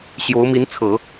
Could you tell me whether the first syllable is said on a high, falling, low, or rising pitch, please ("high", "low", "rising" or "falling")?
rising